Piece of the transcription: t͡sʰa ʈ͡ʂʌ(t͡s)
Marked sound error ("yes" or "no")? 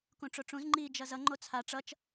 yes